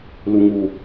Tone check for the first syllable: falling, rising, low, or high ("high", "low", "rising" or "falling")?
low